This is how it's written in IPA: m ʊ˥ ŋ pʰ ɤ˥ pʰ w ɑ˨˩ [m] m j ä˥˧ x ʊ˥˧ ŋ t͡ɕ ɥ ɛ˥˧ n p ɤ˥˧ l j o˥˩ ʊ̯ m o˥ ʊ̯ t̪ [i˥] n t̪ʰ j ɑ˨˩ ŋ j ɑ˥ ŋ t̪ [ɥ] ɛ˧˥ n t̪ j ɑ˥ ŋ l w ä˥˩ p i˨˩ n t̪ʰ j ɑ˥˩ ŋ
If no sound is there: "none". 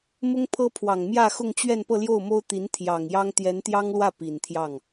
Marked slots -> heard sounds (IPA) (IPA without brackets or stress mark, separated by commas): ŋ, i˧˥, j